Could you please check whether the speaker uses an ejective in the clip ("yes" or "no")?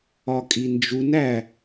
yes